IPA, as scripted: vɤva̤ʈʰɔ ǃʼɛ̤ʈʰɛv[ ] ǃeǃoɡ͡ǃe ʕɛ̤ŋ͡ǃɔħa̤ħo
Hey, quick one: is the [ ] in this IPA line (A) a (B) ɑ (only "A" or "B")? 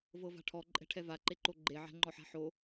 A